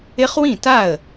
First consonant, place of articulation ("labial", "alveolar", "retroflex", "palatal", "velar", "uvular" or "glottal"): uvular